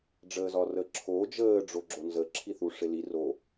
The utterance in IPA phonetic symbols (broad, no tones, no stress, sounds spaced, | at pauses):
ɖ͡ʐ əː z ɒ r əː ǁʰ oː d͡ʒ əː ɖ͡ʐ o ɡ͡ǁ o n z ə ǁʰ i θ u ʂ ɪ l i r o